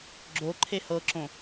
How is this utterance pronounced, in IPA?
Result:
ɡ͡ǁo ǃʰehɤǁõ

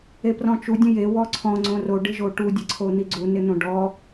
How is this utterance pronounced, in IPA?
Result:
eprɔ̃t͡ʃu dʲə̃je wɔǀʰɔ̃ ŋ͡ǀõro ɖɪʒoʈu dʲəǀʰon̪iɡ͡ǀu nɪn̪õɖɔ

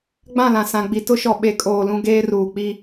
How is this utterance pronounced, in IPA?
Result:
ɡ͡bã˦˨lã˨ sã˨ɡ͡bi˨ tʊ˦ʃɔ˨ ɓe˨˦kʼoː˨lũ˦ ɡeː˦ruː˨k͡pi˦

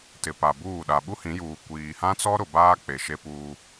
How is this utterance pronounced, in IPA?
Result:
tɪ˨pa˨buː˦˨ ɗa˨ɓu˦hĩ˨˦juː˨ kʷiː˨hã˦t͡sɔ˦ ɾʊ˨baː˦ k͡pe˨ʃe˦puː˦

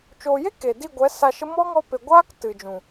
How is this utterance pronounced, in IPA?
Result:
t͡ʃoː˨je˦ ke˨di˦˨ ɡʷɛ˨˦sa˧ʃə˦ mɔ˦ŋɔ˧ pe˨ɡʷaː˦k tɨ˨d͡ʒũ˨

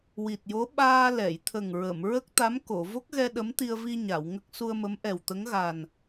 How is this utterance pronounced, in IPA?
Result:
wi˨˩t̚jo˧˥ɓaː˧ lɛ˨˩˨jt̪ʰə˨˩ŋɹə˨˩˨m ɹə˦˥k̚t̪a˧˥m ko˨˩˨ vo˦˥k̚ɣɛ˧ ɗə˧˥mt̪i˧ə̯vi˧ ɲa˨˩˨wŋə˦˥k̚ su˧ə̯mə˧˥m ʔɛ˨˩wt̪ə˧˥ŋɣa˨˩n

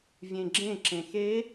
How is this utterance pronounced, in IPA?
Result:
vʲẽɡ͡ǁẽ ǁẽxe

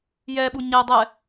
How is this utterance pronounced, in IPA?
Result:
jɛɓu ɲɛ dˤɛ

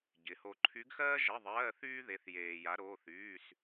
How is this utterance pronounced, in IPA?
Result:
ɟɪ˧˥ho˥ ǃʰy˧˥ɡxɜː˥ʒə˧˥˧ðˤɜː˧˥˧θ yː˥ðe˧˥θjeː˧ ja˧˥ɾoː˧˥˧θyː˧˥˧s

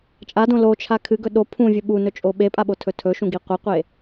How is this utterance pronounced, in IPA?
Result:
t͡ʃʼadõ lot͡ʃʰa kʰɨɡɵ ɗo pʰũvʲɵ ɓunɵt͡ʃʼo ɓepʼaɓotʰɵ tʰɵʃũɡi qʷeqʷe

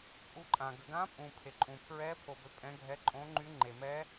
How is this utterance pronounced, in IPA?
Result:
pʼu˦˥ǃʼã˧ ɡə˧ɡã˦˥pʼũ˧ pʰe˧ǃʼũ˧pʰɹɛ˦˥ pʰo˧bø˧ pʼɛ̃˦˥ɡʱɛ˦˥ ǃʼõ˦˥ŋ͡ǃy˦˥ŋ͡ǃe˧mɛ˦˥

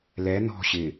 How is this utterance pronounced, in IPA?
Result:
lɛ nɔ̤ ɕɪ

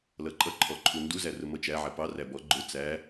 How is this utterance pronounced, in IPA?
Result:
lʌǃʼʌǃʰɔǃʰu nduzærʊmʌ t͡ʃæʕæ pɑ ræbɔ ɡ͡ǃʊ t͡sæ

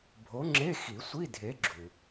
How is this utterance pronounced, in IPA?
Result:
bʱo˨˥ŋ͡ǁe˧˥˧xi˨˩˦ sʷi˧˥˧dʱe˨˥ɡ͡ǁu˩

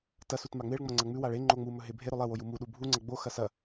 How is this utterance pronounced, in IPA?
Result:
tɐsut maŋ͡meɭŋ͡mɐ ŋ͡ǀɐŋ͡mʉwaɭ e ŋ͡ǃoŋ͡mumɵ ɦebʱeɾɵ lˠewoj umuɗu bʱuŋ͡ǀɐ ɡ͡boxɐ sɐ

